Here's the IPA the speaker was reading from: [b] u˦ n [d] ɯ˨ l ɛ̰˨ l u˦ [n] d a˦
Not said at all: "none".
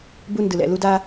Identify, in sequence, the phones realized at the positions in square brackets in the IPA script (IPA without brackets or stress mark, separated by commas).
b, d, none